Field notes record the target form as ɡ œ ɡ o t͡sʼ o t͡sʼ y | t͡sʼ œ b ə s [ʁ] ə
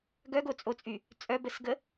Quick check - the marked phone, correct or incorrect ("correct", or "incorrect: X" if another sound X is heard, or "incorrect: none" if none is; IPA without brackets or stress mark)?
incorrect: ɡ